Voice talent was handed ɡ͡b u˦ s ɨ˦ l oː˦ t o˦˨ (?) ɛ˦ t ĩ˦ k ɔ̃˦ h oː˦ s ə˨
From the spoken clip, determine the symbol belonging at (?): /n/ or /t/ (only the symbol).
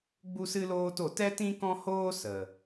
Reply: t